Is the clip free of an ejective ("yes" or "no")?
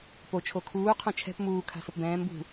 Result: yes